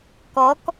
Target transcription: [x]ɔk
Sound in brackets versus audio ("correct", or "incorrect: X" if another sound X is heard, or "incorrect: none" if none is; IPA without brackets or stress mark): incorrect: k